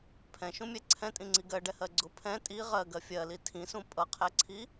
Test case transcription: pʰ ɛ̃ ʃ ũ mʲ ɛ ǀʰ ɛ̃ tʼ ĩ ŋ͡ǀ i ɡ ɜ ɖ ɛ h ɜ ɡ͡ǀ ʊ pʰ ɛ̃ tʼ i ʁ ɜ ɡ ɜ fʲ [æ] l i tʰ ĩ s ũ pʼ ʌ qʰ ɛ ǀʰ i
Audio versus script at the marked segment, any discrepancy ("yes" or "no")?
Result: yes